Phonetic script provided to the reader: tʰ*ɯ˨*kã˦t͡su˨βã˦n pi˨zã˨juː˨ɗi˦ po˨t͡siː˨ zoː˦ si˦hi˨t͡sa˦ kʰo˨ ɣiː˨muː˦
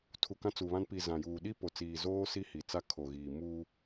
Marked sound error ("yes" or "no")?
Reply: yes